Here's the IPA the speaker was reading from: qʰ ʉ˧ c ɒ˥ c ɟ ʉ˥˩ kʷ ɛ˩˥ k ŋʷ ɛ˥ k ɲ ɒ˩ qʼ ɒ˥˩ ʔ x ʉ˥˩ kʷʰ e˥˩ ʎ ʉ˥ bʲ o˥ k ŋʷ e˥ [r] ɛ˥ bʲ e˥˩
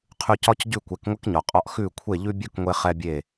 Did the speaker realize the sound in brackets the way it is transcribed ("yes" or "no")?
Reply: no